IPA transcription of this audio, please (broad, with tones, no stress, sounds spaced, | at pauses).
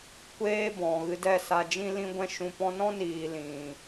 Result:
kʷ eː˦ b ɔ̃˨ ɣ ɨ˧ d ɛ˦˨ s a˧ d͡ʒ ĩ˦ l ĩ˧ ɡʷ ɛ̃˧ ʃ ũ˧ p ɔ̃˧ n ɔ̃˦ n iː˨ l ĩ˨